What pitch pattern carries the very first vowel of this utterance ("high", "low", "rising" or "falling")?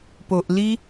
low